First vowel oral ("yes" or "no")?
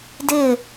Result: yes